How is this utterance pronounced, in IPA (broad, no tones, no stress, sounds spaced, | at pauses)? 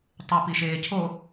tˤ ɨ p i ʃ eː cʰ o